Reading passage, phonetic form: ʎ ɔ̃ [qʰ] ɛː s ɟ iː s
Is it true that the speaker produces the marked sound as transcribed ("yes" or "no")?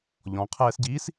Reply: yes